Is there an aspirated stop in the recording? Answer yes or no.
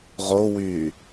no